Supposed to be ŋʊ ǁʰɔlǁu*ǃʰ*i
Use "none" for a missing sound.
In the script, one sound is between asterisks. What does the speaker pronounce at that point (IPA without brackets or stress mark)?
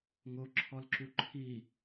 ǃʰ